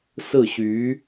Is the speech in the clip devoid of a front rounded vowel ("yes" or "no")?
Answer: no